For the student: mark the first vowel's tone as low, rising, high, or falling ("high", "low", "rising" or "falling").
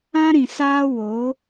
high